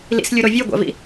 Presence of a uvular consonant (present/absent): absent